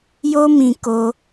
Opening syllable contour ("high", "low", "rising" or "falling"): high